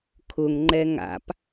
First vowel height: high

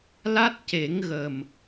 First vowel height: low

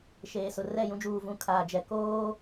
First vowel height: mid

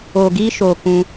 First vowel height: mid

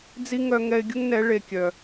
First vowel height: high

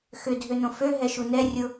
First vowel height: high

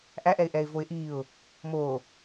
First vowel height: low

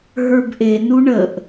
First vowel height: mid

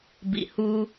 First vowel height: high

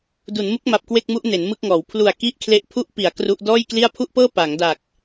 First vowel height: high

